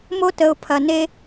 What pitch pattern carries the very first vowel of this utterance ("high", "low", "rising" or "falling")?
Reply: high